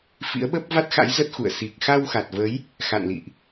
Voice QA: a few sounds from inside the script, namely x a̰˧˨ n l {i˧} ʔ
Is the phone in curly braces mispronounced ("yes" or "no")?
yes